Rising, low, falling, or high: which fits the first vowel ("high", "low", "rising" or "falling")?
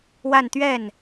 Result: falling